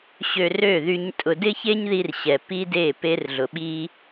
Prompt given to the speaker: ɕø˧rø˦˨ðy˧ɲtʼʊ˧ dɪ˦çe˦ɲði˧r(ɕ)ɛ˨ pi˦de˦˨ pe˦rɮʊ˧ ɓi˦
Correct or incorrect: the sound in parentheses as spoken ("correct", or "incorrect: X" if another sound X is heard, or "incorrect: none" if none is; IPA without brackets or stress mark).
correct